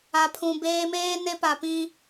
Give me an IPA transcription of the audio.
a˨pʰũ˨beː˦ meː˦ne˦pa˨pĩ˦

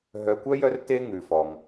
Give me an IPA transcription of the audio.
ɦœ˨kʷœ˦ jœ˦r te˦ŋʉ˩fɔ˩ŋ

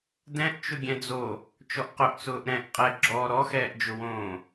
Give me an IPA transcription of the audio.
dɛ̃ʔ t͡ʃʊɡʲɛ̃d͡zo | t͡ʃɔʔqʊʔt͡sʊːʔ ɾɛ̃ʔ qʼɛ ɡ͡ǁɔ ɾɔxɛːʔd͡ʒʊwõː

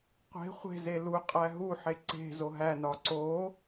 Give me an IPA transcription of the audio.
qʷe̤ χʷe̤ze lu qʼæɦuħe ǀe̤ zoɦænɒ ǀo

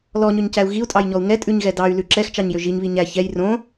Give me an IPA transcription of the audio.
lɔɲøɲcæu̯ ɣiu̯tʼɑjɲɔu̯ ŋɛtʼʉɲɣɛ dɑy̯lʉ ǁɛxt͡ʃɑɲjø ʒiɲβi ɲæ çɛj rõ

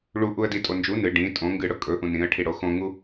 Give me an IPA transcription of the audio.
ɭuʔuə̯ ditʼo nd͡ʒu nɨ ɖĩ tʼõ ŋɡɨɽɵ kʼɵʔũ nĩə̯ʈʰiɽo xõŋu

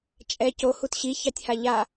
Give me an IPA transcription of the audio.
t͡ʃʼɛ cohut ɕiçɑtʲha ʎa

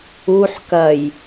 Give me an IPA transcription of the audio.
uħ kɐj

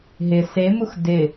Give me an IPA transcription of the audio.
ɦɪ semux dɪ

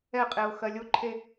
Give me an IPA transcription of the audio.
ɛqʼeʊ̯ xɜlʲoǃʰe

